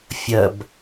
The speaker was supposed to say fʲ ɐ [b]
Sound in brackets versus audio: correct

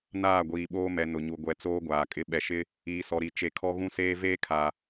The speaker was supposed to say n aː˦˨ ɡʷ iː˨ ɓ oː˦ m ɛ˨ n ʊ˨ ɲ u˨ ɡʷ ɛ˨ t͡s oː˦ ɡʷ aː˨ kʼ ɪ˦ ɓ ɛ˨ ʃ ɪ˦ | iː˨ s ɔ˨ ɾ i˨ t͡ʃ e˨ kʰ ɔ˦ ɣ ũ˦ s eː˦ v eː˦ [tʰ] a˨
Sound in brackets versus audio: incorrect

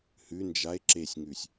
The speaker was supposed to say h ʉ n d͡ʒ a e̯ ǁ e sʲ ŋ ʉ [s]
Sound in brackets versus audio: incorrect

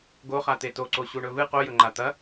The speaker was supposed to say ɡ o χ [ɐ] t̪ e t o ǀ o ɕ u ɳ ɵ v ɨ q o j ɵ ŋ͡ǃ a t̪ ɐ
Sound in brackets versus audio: incorrect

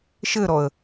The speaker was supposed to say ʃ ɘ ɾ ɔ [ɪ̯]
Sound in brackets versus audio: incorrect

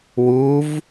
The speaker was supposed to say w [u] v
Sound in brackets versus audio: correct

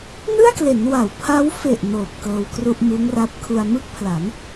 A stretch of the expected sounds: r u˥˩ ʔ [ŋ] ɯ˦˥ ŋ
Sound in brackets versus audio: incorrect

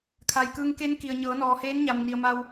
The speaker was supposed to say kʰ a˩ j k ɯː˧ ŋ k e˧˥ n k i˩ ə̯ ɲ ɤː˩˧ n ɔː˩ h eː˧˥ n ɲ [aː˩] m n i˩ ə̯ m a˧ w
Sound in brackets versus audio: incorrect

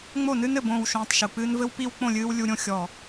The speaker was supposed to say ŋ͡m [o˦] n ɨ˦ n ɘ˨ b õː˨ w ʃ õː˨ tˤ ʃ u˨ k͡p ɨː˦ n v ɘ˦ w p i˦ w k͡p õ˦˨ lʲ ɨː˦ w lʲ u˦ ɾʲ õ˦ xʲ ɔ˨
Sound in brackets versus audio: incorrect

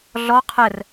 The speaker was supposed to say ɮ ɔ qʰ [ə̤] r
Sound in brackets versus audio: incorrect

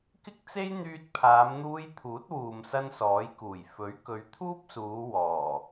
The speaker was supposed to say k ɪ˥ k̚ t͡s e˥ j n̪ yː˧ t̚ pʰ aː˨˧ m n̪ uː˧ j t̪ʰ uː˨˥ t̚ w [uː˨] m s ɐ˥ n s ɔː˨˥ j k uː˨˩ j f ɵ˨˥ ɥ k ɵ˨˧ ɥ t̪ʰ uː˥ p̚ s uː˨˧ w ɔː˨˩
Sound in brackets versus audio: correct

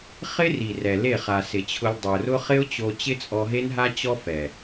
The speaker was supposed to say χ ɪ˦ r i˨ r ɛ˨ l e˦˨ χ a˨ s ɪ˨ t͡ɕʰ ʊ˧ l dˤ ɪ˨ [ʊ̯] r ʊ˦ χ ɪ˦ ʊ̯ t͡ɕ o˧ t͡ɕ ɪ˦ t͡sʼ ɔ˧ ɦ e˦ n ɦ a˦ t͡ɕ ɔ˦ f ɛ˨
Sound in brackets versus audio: correct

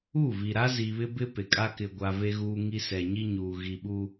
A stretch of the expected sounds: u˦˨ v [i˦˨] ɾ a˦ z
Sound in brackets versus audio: incorrect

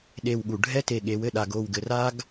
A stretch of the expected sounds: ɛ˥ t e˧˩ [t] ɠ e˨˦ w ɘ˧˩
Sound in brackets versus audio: incorrect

